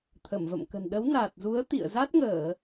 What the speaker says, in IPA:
t̪ʰə˧˩mvə̰˧˨mkə̤˨˩n ɗə˨˦wna˨˩t̚zu˨˦ə̯ t̪ḭ˧˨ə̯za˦˥t̚ŋəː˧˩˨

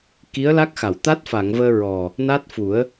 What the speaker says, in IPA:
ki˧˥ə̯la˦˥k̚xa˨˩˨wt̪a˦˥t̚ fa˨˩˨ŋvəː˧ ɹɔ˨˩ | na˦˥t̚fu˨˩˦ə̯

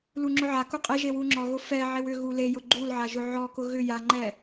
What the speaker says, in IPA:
luŋ͡ǁʊʕaku qʼeʒe wuŋ͡ǁɔɣʊ fɛʕew ʏ ɣulejʊ ɡ͡ǃulʕa ʒʊʕɔkʊ ɣʏ jaŋ͡ǃɛ

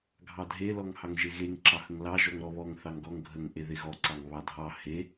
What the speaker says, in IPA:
ɡʱɑdʱe lɔŋhɑŋʒeɣeŋ ǁɑhəŋlɑ ʒɔŋɾɔβɔŋ θɑŋɡɔŋ ɡʱəŋ ʔeðeɣɔ ǀɑŋβɑdʱɑ he

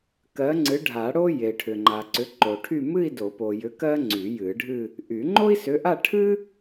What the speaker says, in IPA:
kɜ˨˥ ŋ͡ǀɨ˨˥ɖʱa˨˩˦ ɽo˥ je˨ʈʰʏ˨ŋ͡ǃa˨ǀʏ˨˥ ǃo˨ʈʰy˥˧ mɨ˥˧i̯do˨˩˦po˨jʏ˨˥ kɜ˥ ŋ͡ǀy˨˩˦jɨ˨˩˦ɖʱɨ˥˧ | ʔy˨˩˦ ŋ͡ǃo˥i̯sʏ˨˥ʔa˥˧ ʈʰɨ˥

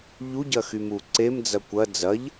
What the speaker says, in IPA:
ʎuɟɐxymu ǀemd͡zɐ kʷɐ d͡zɐʎ

